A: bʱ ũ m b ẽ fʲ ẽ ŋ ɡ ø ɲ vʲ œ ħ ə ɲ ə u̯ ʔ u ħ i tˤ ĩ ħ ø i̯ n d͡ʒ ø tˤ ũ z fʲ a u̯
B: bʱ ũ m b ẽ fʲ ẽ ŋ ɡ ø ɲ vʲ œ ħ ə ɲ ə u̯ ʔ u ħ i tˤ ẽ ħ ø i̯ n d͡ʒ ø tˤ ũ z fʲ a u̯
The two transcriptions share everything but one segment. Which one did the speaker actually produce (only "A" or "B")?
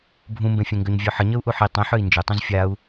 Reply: B